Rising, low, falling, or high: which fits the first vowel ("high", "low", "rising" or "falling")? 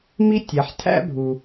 high